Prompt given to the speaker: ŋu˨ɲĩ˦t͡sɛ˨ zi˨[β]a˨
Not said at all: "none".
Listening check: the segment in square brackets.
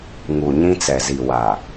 w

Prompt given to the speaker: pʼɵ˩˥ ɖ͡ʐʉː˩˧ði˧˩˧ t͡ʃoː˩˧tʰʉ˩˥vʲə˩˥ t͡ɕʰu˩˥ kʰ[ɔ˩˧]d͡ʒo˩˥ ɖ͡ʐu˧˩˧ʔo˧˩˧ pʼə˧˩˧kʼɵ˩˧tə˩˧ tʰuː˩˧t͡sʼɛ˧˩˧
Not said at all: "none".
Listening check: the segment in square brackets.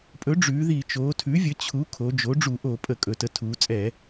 o˩˧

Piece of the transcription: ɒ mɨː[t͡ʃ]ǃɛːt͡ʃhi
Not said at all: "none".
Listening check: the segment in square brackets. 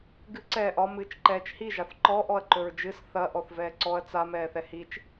t͡ʃ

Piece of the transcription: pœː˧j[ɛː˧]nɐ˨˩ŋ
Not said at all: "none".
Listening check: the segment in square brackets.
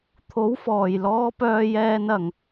ɛː˧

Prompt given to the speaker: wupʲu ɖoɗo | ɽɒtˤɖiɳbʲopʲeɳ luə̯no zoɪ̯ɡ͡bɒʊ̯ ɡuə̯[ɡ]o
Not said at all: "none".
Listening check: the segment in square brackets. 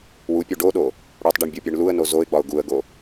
ɡ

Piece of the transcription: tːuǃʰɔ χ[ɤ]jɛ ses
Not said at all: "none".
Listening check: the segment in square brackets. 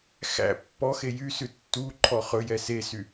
ɵ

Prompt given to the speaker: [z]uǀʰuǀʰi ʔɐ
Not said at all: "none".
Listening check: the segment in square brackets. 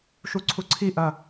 ʃ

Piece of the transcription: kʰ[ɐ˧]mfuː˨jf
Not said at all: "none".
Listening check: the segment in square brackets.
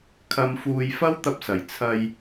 ɐ˨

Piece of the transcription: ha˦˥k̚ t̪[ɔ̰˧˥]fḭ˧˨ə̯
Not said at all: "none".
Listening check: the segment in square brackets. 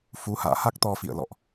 ɔ˧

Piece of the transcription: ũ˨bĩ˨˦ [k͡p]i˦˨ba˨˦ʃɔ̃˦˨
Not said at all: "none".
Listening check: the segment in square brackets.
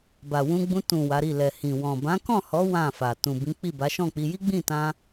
k͡p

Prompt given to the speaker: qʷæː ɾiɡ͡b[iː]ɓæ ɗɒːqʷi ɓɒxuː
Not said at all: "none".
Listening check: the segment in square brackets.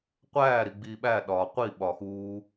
iː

